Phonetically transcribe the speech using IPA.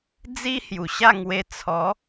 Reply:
d͡zi˦ hju˨˩ɕa˥˧ ŋwe˧ t͡sʰɔ˨˦

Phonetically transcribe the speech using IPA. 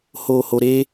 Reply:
hoː˨ho˨ ɾe˦

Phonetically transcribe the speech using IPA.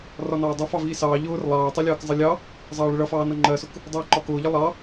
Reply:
rɒnɑːdˤʌ fɑviːsɑː ʎʊːr lˠɑːtˤilʲɑːk zˤəlʲɑ | zˤɑːɭəɭʌfɑː nʌŋ͡ǃɜsʊk | dˤiːǃɒkʊːʎə lˠɑ

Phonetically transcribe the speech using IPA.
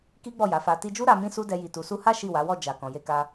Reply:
ki˦ɡ͡bɔ˦˨ja˨˦fa˧ ti˧d͡ʒu˦ ɾa˧ mĩ˦su˦dɛ˧ ji˨tu˨su˧ha˦ ʃi˦˨wa˨˦wɔ˦˨ d͡ʒa˨ kɔ̃˨je˧ka˧

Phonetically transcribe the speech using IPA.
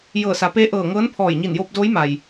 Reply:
jɤː˧˩sa˩˧peː˧˥ʔɤː˧˩ ŋɤː˧˥npʰɔː˧˩j ɲi˧˩njoː˧p̚ doː˧˥jma˩j

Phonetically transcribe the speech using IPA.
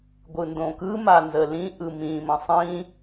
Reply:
ɡʷɯndõkɯ manzəlĩ ʔɯmĩ mə̃sˤĩ

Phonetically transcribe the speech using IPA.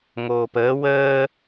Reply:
ŋoːpəː wəː

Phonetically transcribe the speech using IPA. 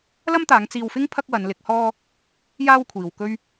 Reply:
lɐ˥mt̪aː˨˧ŋ t͡siː˧wfɪ˥ŋ pʰɐ˥k̚wɐ˨˧nlɪ˨˥k̚hɔː˥ | jaː˥wkʷʰiː˨wkɵ˥ɥ

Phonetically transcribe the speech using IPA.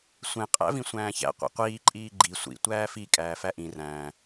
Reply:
sʷẽ qʼæ̰vĩsʷæ̃ːçæ̰ qʷḛqʷiː ǃʼiːɡ͡ǃi sʷḭ tʷæːfi kʼæːfæʔĩ ræ̃

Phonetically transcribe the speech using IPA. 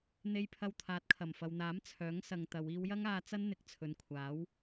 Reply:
n̪e˧jpʰɐ˧w t̪ʰaː˨˥t̚kʰɐ˨˩m fɐ˨wn̪aː˨˥m t͡sʰœː˨˥ŋsɐ˨ŋt̪ɐ˨˧w iː˧wjɐ˥ŋaː˧t͡sɐ˥n n̪ɪ˧k̚t͡sʰɵ˨nkʷʰaː˨˥w

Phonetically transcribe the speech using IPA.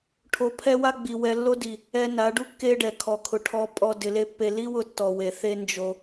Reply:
ʈʰo˨˦pʰɛ˦wa˦ ɡ͡bi˨ wɛ˧lːo˦di˨ | ɛ˧ na˨˦ɖu˦kːe˦ɖɛ˨ kʰɔ˨kʰʊ˨ʈʰɔ˧ pʼɔ˨ dɪ˧le˦pːe˦ li˦wʊ˧tːɔ˨ we˨θe˦ nd͡ʒo˧

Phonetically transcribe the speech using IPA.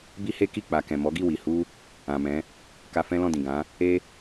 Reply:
bi˦he˦ ki˦˨k͡pa˨kɛ̃˨ mɔ˨˦ɡi˦˨wi˨ hu˧ | ã˨ mɛ̃˨˦ | ka˧fɛ̃˦lɔ̃˦˨dĩ˨ ɡã˨˦ | e˦

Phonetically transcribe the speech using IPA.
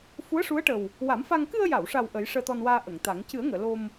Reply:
fu˧˥ə̯ʂu˧˥ə̯ʈə˨˩w | wa˨˩˦mfa˧ŋ kɨ˧ə̯ja˨˩˨wʂa˨˩w ʔə˨˩˦jʂəː˧t̪ɔ˧nwaː˧ ʔə˨˩˨ŋt̪a˨˩˦ŋ cɨ˨˩˦ə̯ŋəː˨˩˨ lo˧m

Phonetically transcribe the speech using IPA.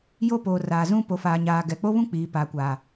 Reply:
jo˦poː˨raː˨zũ˦ po˨faː˨ɲaː˨ ɡɛ˨k͡po˦βũ˦k͡piː˨ pa˨kʷaː˨

